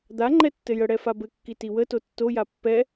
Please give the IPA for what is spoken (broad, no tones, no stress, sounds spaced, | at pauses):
d̪ a ŋ͡ǃ ɛ tː ɘ j ə ɽ ɛ f a b ɘ kː i t i w ə t o tː o j a pː ɛ